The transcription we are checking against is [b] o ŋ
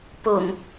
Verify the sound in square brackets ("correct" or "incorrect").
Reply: incorrect